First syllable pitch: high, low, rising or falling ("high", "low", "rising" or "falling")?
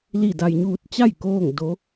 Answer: falling